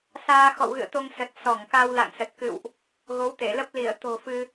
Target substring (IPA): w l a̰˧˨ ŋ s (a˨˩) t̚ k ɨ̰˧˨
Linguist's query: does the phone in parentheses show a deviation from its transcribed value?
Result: yes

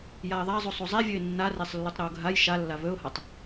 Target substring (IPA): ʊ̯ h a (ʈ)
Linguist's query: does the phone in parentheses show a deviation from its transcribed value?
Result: yes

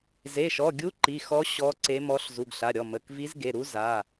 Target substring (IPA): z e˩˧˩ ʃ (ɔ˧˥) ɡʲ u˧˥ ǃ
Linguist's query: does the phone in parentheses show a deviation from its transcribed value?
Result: yes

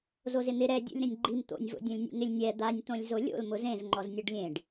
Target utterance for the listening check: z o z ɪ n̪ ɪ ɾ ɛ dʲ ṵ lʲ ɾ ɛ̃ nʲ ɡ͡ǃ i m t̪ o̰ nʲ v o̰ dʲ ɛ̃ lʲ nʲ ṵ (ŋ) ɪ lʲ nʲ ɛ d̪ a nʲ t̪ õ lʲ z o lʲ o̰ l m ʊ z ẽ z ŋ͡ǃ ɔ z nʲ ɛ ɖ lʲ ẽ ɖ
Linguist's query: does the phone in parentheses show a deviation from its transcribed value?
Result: no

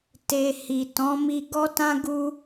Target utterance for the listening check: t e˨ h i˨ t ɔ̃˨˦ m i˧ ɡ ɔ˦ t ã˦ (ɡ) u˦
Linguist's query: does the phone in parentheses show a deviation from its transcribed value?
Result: no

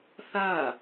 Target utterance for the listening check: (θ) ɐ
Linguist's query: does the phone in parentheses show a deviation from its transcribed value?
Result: no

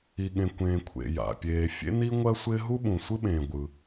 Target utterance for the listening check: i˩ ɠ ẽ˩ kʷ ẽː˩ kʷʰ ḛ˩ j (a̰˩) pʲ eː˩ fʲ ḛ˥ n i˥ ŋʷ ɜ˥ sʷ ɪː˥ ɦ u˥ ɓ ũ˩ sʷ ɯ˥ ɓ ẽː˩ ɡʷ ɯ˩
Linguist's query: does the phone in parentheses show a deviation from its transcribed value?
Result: no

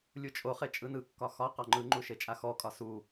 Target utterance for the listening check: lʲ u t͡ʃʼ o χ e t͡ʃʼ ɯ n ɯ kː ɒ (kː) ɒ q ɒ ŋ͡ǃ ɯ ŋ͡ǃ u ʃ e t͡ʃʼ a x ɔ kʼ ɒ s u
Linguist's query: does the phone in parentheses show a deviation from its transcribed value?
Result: yes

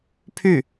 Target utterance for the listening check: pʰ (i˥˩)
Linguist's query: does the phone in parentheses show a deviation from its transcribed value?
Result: yes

